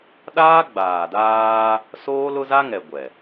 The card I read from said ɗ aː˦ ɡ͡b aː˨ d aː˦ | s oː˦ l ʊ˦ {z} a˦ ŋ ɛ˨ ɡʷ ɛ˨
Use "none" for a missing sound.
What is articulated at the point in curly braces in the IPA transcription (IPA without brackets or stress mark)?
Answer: z